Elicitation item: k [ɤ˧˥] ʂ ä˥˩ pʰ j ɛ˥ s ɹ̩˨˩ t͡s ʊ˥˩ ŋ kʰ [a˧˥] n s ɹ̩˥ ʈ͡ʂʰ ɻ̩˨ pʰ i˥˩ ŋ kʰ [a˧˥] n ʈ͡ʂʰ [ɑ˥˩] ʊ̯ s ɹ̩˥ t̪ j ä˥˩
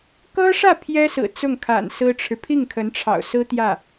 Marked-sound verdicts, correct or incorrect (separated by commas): incorrect, incorrect, incorrect, incorrect